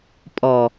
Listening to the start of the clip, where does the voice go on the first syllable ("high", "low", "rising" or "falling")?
low